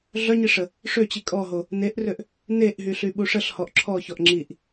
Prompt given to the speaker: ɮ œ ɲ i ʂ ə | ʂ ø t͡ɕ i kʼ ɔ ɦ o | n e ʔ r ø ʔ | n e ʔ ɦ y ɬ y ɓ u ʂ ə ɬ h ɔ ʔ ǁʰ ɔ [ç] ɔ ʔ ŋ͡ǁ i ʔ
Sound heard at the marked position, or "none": ç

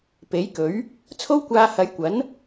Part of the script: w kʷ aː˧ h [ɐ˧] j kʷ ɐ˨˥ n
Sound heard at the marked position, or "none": ɐ˨˧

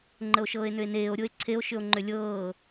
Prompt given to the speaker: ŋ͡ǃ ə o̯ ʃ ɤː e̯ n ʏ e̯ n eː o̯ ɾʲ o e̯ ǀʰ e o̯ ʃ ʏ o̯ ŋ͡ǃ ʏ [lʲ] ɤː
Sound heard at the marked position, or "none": lʲ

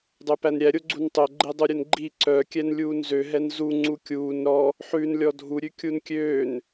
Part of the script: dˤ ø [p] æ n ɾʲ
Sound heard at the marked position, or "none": p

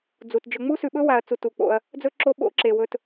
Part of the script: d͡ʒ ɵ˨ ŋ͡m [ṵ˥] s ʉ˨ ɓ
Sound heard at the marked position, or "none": u˥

